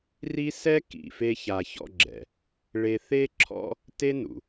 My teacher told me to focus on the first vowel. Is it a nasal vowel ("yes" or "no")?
no